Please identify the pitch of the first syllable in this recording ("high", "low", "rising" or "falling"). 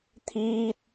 high